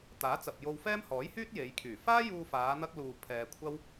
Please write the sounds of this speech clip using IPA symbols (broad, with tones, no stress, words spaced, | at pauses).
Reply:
t̪aː˨˥t͡sɐ˨p̚ jo˧wfɛː˥mhɔː˨˥j hyː˥t̚ je˨˧jkʰyː˨˩ faː˥juː˧faː˨˧ n̪ɐ˥k̚luː˧ pʰɛː˧kʷʰɐ˥w